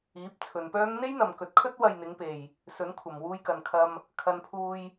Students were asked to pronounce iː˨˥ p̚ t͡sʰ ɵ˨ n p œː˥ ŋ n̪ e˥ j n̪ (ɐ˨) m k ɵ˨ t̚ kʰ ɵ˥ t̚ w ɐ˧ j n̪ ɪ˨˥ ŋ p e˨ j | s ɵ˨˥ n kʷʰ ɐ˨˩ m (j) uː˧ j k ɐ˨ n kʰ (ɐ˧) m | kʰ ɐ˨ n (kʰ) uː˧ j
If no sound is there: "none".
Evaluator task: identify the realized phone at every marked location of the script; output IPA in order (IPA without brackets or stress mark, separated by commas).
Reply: ɐ˨, w, ɐ˧, pʰ